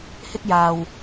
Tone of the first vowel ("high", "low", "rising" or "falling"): high